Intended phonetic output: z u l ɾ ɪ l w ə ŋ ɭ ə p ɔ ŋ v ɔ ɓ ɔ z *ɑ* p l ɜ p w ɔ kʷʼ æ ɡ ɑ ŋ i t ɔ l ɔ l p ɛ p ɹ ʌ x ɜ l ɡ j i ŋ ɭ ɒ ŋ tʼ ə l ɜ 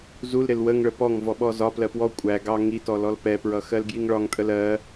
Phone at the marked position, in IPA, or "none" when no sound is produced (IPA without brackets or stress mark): ɒ